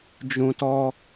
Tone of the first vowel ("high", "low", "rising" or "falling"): low